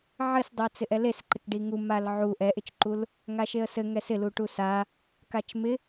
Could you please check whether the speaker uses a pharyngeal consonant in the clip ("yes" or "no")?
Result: yes